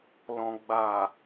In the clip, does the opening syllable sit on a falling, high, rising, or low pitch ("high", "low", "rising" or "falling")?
low